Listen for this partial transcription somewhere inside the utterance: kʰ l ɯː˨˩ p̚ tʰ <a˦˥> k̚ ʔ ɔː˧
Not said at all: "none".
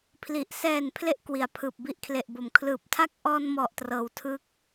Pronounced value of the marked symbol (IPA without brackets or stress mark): a˦˥